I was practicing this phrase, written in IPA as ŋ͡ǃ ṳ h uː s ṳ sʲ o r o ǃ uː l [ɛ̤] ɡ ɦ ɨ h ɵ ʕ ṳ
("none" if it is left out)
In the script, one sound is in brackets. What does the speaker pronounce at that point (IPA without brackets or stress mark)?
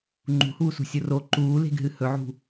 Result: e̤